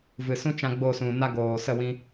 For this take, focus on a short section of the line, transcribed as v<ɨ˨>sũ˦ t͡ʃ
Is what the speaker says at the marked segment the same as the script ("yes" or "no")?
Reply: yes